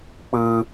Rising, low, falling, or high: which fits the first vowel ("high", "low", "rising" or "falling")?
high